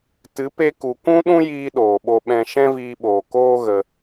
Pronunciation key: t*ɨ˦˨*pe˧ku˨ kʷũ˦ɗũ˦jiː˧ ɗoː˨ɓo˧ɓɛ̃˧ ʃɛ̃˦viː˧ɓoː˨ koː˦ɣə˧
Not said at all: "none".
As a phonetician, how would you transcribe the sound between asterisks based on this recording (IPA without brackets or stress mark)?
ɨ˨˦